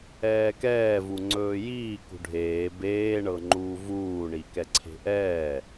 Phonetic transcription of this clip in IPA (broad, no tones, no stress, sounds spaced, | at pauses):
ɛː k ɛː v u ŋ͡ǀ ɵː j iː k ṳ ɖʱ eː b eː ɳ ɤ ŋ͡ǃ uː v uː ɳ i k ɛ ǀʰ e̤ ʔ ɛː